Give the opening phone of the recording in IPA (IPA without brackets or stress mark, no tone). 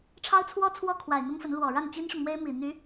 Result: ʈ͡ʂʰ